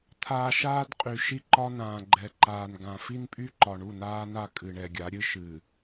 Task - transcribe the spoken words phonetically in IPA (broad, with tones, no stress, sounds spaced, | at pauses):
t̪ʰ aː˨ ʃ aː˦ d qʼ y˨ ʃ i˦ ǃ ɒ˦ n ãː˨ ɡ͡ǃ ɛ˨ ǃ aː˨ n ɡ ã˨ f i˦ n pʼ y˦ ǃ ɒ˨ ɳ u˦˨ n aː˦ n a˦˨ kʼ ɨ˨ ɳ ɛ˨ ɡʲ a˨˦ ɾʲ ɨ˦ ʃ ɨː˨